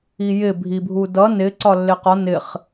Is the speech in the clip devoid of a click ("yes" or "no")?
no